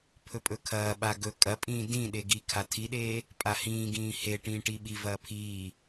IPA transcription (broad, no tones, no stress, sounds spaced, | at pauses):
pʰ ɵ pʼ ɵ kʰ ɐː ɓ a ɡ ɵ kʼ ɐ pʼ ĩː d ĩ ɗ e ɡ i kʰ a tʰ i ɗ eː | pʼ a h ĩː ɡ ĩː h e ʈ ĩː ʈ i ɓ i v ɐː pʰ iː